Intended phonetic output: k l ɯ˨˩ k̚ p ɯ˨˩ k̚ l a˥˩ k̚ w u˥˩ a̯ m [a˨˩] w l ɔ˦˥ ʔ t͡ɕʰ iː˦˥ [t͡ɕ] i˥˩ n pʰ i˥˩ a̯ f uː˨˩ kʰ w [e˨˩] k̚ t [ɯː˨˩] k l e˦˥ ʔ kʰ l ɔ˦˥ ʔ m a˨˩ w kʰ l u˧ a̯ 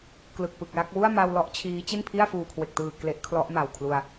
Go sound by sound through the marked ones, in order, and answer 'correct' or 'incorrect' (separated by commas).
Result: incorrect, correct, correct, correct